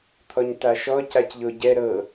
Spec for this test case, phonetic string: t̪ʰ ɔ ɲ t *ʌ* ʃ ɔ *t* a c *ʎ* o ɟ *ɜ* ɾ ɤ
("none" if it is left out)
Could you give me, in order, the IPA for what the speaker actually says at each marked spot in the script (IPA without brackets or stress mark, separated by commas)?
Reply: a, c, ʎ, ɛ